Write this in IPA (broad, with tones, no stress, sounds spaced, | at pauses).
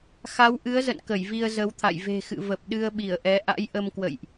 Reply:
x a˨˦ w ʔ ɨ˨˦ ə̯ z ə̰˧˨ n k ə˧˩ j v i˧ ə̯ z ə˨˦ w t̪ʰ a̰˧˨ j v e̤˨˩ x ɨ̰˧˨ v ə˨˩ p̚ ɗ ɨ˧ ə̯ ɓ i˧˩ ə̯ ʔ ɛ˨˦ ʔ a̰˧˥ j ʔ ə˧ m k w ə̰˧˨ j ʔ